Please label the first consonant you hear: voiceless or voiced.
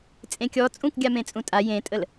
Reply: voiceless